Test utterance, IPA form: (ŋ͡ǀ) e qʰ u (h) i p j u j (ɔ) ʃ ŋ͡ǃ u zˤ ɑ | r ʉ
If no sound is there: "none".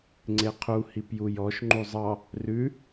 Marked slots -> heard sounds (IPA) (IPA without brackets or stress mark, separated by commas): ŋ͡ǀ, h, ɔ